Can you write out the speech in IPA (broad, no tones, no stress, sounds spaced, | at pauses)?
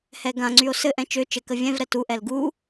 h ɛ ɡ ã ŋ͡ǀ y o̯ s ɘ ʔ ɛ̃ t͡ʃ ø t͡ʃ ɘ k ə vʲ ɛ̃ v ɾ ɛ t u ʔ ɛ l ɡ u